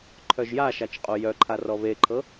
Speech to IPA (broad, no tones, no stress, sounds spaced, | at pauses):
ǃʰ œ ʒ j a ʃ a t͡ʃ qʼ o j œ ǃʰ a r ɔ β e ǃʰ ɤ